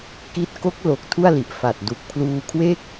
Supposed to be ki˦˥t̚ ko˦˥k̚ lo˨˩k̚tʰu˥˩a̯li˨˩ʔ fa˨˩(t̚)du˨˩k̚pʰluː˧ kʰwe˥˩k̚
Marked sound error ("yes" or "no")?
no